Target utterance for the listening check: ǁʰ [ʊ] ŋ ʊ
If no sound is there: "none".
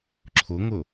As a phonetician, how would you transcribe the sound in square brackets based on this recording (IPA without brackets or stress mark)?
ʊ